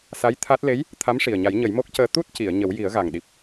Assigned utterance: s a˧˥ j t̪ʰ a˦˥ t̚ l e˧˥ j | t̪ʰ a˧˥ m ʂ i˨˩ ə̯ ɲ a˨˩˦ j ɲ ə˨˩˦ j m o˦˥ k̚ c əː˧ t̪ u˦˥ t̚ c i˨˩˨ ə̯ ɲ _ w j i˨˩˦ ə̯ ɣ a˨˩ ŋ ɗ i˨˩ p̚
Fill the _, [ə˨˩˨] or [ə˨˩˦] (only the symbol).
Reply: ə˨˩˦